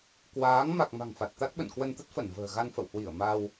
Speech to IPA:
k w aː˨˦ ŋ m a˨˩ k̚ m a̤˨˩ ŋ f a˨˩ t̚ t̪ a˦˥ t̚ ɓ ə̰˧˨ n k w ə˧ n t̪ ə˦˥ t̚ f ə˧˩ n v ə̤ː˨˩ ɣ a˧ n f ə̰˧˨ w h w i˧˩ ə̯ m a˧ w

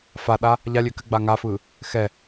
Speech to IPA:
f a ɗ a | ʎ a lʲ ø k ɘ ɡ͡b a ŋ a f ɯ | x ɛ

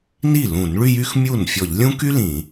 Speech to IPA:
n i˥˩ l ũ˧˩˧ n ɭ y˥˧ j y˥ x mʲ u˥˩ n fʲ ɔ˧˩˧ ʎ lʲ ũ˥ k y˥ l ĩ˧˩˧

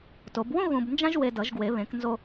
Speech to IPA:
t o˨˩˦ b w õ˥ ɣ ũ˧ b n d͡ʒ ã˥ ʒ w e˧ d ʌ˨˩˦ ʒ ɡ w e˨˩˦ β ẽ˨˩˦ k n z o˧

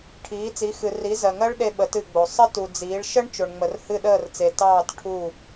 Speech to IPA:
ʈʰ iː˨˥ t͡s i˨˥ x ɨ˨ r i˨˥ z ɜ˨ ŋ ɜ˦˥ ɭ ɗ e˦˥ ɓ ə˨˥ t ɨ˦˨ ɡ͡b o˨ sˤ ə˦˥ t u˨ d͡z iː˨˥ ɭ ʃ ə˦˥ ɳ t͡ʃ o˨ ɳ ŋ͡m ə˨ r h ɨ˦˨ ɗ əː˦˨ r t͡s e˨ t ɑː˦˨ t ʈʰ u˦˨

